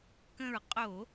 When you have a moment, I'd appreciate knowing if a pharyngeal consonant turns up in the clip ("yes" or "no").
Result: no